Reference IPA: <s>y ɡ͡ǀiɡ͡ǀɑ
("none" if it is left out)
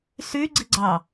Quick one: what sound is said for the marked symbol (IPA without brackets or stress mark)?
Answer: s